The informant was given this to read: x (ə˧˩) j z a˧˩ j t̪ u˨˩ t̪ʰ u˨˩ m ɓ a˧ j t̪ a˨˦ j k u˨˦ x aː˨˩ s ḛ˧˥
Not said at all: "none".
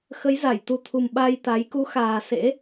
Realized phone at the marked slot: ə˨˦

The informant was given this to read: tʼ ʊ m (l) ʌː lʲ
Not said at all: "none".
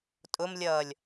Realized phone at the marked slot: lʲ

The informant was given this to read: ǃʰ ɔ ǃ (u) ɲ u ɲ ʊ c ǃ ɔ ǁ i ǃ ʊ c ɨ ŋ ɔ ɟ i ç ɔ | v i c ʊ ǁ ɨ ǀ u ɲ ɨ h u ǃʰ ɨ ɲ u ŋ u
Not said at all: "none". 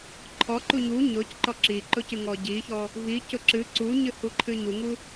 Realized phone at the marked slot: u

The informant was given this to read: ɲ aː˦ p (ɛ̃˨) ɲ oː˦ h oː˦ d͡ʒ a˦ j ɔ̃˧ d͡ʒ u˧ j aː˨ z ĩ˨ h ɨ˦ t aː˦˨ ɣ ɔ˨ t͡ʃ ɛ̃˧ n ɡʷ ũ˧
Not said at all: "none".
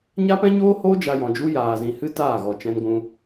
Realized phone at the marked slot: ɛ̃˦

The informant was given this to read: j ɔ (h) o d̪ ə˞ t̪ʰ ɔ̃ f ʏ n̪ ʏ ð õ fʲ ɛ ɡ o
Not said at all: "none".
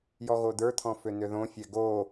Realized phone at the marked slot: ɣ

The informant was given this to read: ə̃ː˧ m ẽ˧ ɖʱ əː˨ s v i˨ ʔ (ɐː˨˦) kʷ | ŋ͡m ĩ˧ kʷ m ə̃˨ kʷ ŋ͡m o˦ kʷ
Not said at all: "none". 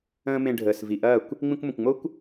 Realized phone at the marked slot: ɐː˦˨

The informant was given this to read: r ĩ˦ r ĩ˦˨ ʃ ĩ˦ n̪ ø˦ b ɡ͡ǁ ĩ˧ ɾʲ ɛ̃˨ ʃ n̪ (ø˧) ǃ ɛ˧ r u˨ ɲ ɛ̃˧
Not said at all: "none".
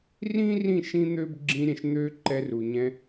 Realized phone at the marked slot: ø˧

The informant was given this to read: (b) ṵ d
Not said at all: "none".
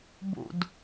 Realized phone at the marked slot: b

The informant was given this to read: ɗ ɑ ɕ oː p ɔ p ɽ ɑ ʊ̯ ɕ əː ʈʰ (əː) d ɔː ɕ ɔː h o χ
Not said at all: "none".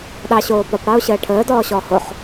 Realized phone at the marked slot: əː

